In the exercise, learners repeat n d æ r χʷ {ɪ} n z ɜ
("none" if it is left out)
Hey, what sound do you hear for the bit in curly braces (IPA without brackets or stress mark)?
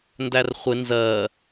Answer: ɪ